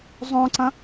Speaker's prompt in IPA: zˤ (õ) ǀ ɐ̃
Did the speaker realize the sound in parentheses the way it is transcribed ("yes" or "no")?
yes